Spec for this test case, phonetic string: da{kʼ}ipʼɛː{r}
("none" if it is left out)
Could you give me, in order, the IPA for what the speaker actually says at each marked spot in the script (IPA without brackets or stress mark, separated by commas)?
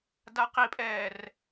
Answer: q, r